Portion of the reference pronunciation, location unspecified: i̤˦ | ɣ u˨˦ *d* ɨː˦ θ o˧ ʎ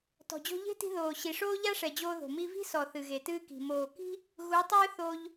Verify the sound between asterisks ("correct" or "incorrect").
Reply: incorrect